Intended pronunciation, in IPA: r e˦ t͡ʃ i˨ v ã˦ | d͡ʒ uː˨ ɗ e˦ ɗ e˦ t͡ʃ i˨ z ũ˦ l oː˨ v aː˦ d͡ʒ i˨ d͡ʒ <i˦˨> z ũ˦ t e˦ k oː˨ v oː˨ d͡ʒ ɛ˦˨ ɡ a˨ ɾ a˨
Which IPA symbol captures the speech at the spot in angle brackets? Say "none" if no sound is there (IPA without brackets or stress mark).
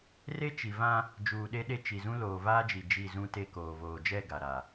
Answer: i˦˨